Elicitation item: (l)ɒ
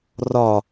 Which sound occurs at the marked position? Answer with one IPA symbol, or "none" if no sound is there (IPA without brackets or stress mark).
r